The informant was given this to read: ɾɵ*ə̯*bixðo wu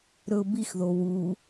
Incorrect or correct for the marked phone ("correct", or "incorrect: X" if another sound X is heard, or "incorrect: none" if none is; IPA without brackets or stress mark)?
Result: incorrect: ʊ̯